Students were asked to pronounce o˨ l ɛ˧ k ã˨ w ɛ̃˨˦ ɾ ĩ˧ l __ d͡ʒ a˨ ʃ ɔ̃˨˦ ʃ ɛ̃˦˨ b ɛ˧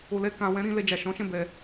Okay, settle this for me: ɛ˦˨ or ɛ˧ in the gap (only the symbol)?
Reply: ɛ˧